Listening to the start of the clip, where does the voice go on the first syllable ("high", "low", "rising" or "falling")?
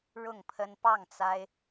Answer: falling